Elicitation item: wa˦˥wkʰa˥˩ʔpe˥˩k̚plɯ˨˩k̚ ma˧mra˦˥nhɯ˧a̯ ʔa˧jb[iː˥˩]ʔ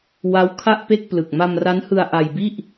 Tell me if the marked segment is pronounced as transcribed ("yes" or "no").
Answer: no